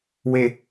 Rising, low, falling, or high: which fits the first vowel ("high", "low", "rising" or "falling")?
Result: low